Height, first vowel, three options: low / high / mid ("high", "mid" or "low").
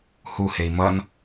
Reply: high